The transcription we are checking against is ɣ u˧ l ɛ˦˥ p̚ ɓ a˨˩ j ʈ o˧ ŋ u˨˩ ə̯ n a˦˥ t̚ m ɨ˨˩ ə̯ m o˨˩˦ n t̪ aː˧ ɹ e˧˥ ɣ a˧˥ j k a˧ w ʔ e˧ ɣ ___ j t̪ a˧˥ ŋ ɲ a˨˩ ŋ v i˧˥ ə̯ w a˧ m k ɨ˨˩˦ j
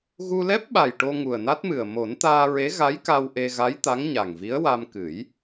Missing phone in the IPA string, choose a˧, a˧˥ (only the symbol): a˧˥